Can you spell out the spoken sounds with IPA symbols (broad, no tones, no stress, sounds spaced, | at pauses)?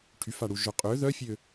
ʈʰ y f a ɽ u ʒ œ qʼ ø ð œ fʲ ø